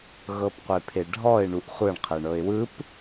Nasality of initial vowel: oral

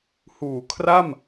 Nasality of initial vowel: oral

